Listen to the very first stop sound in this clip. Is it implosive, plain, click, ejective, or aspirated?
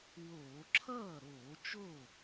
click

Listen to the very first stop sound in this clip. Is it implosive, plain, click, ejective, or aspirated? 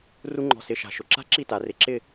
click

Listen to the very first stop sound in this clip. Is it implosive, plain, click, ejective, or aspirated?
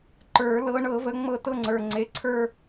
click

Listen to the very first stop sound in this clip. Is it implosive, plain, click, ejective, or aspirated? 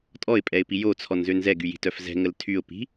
ejective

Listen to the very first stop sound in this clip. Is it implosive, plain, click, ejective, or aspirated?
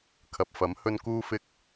aspirated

